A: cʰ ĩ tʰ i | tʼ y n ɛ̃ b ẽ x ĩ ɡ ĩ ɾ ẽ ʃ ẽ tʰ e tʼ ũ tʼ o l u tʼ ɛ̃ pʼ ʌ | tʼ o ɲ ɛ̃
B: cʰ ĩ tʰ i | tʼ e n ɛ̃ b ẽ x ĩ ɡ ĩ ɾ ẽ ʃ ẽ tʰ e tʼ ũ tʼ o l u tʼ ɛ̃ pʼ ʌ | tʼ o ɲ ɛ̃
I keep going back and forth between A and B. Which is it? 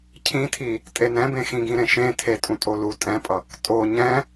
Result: B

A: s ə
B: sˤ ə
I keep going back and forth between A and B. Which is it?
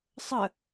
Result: B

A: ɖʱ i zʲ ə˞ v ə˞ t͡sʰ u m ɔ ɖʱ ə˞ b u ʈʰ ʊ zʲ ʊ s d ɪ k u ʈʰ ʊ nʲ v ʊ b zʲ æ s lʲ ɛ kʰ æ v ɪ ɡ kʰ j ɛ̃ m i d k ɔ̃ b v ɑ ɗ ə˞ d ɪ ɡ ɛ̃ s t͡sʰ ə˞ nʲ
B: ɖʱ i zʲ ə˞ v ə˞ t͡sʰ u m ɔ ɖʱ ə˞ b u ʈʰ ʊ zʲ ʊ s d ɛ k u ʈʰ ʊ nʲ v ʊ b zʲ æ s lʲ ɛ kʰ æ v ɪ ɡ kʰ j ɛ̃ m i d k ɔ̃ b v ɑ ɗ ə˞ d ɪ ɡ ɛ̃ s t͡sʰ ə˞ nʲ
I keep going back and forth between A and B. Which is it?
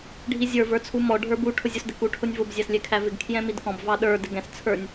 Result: A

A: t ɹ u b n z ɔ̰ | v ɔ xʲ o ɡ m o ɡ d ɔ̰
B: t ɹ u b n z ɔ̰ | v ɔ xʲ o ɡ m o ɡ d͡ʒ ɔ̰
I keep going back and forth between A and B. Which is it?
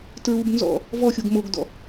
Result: A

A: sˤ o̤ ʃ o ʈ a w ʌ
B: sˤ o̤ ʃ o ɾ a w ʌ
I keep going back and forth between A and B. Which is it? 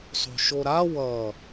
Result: B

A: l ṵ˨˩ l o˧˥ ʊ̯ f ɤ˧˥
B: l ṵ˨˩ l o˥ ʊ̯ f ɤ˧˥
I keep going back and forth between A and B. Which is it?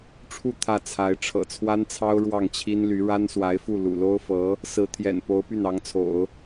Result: B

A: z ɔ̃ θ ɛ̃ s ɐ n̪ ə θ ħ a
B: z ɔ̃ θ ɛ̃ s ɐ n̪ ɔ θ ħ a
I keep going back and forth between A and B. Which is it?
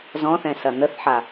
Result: A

